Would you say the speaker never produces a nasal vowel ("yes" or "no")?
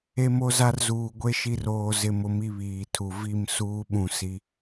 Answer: no